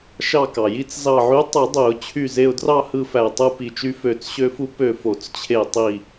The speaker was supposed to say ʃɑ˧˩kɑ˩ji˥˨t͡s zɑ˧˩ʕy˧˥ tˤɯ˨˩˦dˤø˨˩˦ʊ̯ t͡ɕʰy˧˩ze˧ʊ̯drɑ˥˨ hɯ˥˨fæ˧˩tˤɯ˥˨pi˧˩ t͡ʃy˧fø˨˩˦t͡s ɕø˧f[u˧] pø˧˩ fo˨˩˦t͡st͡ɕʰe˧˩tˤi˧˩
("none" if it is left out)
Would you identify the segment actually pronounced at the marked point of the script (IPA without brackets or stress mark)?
u˧